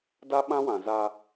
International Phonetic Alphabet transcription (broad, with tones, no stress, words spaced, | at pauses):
da˦ɓã˦wã˨za˦